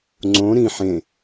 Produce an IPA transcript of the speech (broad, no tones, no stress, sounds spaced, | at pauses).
ŋ͡ǀ õ ɾ ĩ ħ ẽ